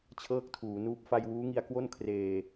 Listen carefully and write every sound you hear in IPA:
t͡ɕʰ ɤː˥˩ k̚ tʰ uː˩˦ n uː˦˥ p̚ f a˧ j w uː˦˥ ŋ i˧ a̯ k w o˥˩ n kʰ r eː˨˩

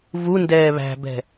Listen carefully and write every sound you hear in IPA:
v u n d ɛː β æ̤ b ɛ̤

